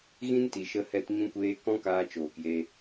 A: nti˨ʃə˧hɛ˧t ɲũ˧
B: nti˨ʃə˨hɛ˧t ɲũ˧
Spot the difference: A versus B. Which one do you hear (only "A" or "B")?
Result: A